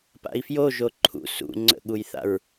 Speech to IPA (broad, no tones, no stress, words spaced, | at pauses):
pa̰i̯fjo ʒoǃʰṵ sṵ ŋ͡ǀə̰ɠujθa̰ɹ